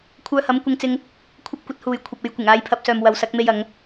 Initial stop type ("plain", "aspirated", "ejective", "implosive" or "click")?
aspirated